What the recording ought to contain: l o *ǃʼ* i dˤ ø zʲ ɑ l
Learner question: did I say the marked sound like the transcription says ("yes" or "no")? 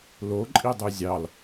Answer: yes